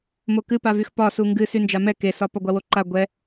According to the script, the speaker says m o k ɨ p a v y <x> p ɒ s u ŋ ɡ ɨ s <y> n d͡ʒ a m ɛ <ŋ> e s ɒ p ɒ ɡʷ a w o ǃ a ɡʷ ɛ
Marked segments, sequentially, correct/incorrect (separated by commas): correct, correct, incorrect